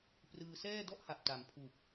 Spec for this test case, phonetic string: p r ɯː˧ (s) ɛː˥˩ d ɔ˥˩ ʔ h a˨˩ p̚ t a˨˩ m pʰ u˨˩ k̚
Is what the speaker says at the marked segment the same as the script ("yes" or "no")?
yes